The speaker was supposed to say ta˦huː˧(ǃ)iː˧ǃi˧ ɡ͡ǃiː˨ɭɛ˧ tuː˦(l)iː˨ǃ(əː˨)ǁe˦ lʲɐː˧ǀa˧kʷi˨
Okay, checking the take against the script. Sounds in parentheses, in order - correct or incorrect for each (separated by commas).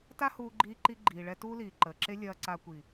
incorrect, correct, correct